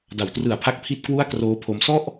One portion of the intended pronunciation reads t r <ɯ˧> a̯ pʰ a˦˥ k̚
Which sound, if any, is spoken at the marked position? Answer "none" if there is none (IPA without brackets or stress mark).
ɯ˨˩